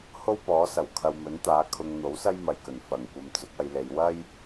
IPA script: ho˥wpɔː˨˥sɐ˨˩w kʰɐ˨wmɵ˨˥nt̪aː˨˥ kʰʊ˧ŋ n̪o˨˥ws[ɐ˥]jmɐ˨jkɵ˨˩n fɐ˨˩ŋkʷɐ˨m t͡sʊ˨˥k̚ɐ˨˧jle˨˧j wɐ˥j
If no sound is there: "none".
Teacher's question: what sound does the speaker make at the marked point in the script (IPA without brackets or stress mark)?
ɐ˥